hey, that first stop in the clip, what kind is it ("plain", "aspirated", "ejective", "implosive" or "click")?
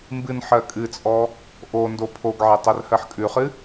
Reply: plain